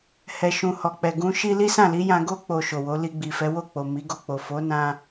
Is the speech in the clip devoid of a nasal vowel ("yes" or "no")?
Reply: no